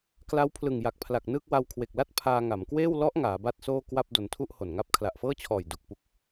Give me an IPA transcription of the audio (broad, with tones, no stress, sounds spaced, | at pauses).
k l a˦˥ w pʰ l ɯ˨˩ ŋ j a˨˩ k̚ pʰ l a˨˩ k̚ n ɯː˥˩ k̚ w a˧ w kʰ w e˨˩ k̚ l a˥˩ t̚ pʰ aː˧ ŋ a˩˦ m k w eː˥˩ w l ɔ˦˥ ʔ ŋ aː˩˦ b a˥˩ t̚ s oː˥˩ k w a˥˩ p̚ d o˧ n tʰ u˥˩ ʔ h o˨˩ n ŋ a˦˥ p̚ kʰ l a˨˩ ʔ f ɤː˥˩ t͡ɕʰ ɔː˨˩ j d u˨˩ k̚ p u˦˥ k̚